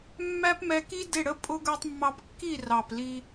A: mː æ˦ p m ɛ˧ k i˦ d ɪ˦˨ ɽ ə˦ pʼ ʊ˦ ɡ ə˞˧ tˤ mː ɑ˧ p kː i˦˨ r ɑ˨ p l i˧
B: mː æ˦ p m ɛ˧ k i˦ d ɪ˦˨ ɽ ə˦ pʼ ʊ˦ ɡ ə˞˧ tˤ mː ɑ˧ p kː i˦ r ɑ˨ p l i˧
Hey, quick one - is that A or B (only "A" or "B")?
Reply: A